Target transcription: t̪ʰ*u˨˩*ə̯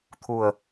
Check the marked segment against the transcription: correct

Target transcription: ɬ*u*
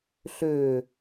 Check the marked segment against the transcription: incorrect: ø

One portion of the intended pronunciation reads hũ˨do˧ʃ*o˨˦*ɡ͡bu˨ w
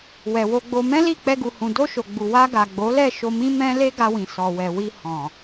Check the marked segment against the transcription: incorrect: o˨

